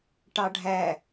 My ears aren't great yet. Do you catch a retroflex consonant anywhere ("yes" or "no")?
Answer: yes